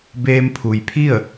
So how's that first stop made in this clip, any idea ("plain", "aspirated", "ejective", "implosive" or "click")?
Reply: plain